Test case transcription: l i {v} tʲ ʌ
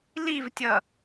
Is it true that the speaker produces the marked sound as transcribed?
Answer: yes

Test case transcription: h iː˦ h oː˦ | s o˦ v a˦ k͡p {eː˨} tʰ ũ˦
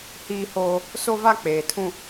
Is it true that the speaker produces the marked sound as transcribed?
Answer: yes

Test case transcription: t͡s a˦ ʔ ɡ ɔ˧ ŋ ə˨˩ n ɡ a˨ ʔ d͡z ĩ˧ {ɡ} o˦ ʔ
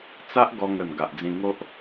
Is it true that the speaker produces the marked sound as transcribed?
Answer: no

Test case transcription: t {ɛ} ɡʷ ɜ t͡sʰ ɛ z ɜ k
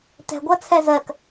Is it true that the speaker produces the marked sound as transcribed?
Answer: no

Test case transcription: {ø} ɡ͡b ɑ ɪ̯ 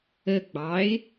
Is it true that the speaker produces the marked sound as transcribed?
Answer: no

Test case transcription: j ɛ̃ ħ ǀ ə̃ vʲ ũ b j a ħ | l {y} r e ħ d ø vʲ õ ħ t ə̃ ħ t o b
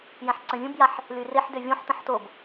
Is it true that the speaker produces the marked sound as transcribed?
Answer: yes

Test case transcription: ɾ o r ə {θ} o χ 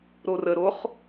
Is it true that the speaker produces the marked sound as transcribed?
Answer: no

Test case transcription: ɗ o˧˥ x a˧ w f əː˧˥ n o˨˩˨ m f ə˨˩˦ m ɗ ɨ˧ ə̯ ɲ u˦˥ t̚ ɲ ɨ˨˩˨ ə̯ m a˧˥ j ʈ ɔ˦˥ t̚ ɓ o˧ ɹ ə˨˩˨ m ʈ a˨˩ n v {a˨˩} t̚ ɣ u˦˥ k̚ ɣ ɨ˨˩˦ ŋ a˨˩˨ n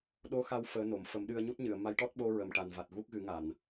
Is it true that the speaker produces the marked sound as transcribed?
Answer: yes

